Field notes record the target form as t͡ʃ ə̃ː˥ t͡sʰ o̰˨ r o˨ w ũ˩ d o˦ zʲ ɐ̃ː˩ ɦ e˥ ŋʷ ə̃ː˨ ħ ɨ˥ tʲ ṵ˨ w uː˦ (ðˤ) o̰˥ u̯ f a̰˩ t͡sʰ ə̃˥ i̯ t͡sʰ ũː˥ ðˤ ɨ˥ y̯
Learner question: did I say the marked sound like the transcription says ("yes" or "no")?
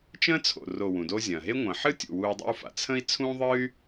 no